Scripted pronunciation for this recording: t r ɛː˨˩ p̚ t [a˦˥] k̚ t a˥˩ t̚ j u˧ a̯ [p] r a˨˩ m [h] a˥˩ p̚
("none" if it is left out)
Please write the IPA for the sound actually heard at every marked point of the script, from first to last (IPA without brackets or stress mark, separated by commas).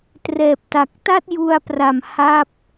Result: a˨˩, p, h